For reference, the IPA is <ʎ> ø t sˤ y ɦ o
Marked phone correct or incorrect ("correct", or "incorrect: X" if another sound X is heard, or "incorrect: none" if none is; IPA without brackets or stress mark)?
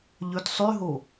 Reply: correct